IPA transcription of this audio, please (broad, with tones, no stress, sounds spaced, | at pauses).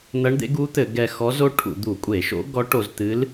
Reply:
n̪ ɐ˧˥ ɳ d̪ ḛ˧˥ ɡ u˧˥ t̪ ɘ˧˩˧ ɡ ɛ˧ x ɔ˧˥ z o˧˥ ʈʰ ṵ˧˩˧ d̪ u˧˩˧ kʷʼ e˧˩˧ ʃ o̰˧˥ ɡ ɔ˧˥ ʈ o˧ z t̪ ɨ˧˥ l